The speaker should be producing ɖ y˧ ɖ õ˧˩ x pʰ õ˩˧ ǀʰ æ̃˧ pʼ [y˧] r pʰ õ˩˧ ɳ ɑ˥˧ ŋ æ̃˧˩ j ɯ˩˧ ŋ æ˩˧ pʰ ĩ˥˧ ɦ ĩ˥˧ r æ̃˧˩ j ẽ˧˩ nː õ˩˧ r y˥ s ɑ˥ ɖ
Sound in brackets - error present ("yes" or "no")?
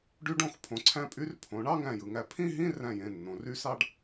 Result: no